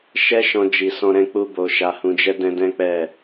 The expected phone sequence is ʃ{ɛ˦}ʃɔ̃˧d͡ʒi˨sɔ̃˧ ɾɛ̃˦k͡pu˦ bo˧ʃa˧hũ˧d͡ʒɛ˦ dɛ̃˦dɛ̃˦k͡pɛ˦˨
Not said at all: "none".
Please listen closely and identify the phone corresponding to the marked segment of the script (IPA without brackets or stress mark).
ɛ˦